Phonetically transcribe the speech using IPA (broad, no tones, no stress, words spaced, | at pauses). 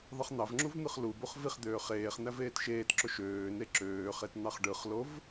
ðˤɯχn̪ɑvŋ͡ǁuv n̪ɯχlubuχ viχd̪øː χeːχn̪æv eːtʃeːtǁo ʃøːne ǁøː χetn̪ɑχɖɯχlov